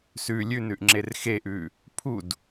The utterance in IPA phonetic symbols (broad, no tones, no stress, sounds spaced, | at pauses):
s ʉ lʲ ʉ n ʉ ʔ ŋ͡ǁ e r x e ʔ ʉ | pʰ u d